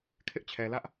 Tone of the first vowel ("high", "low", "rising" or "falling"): high